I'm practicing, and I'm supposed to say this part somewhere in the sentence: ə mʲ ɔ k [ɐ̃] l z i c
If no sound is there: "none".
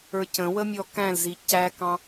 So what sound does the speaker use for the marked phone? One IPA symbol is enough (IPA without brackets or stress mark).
æ̃